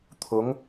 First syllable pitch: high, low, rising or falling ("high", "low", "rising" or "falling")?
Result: rising